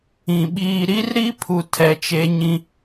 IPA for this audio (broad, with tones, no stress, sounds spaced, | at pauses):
ĩ˨ ɓ iː˨ ɾ i˦ r ɾ i˦ pʰ u˨ tʰ ɛ˨ t͡ʃ e˦ ɲ ĩ˦